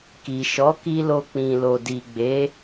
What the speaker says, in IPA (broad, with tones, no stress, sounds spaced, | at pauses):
k i˨ ʃ ɔ˨˦ k i˧ l o˧ k͡p ĩ˨ l o˨ d i˨ ɡ͡b e˨˦